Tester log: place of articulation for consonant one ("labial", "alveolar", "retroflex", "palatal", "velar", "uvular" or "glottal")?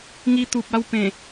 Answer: velar